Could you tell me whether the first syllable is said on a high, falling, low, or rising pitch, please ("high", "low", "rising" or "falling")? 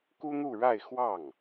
high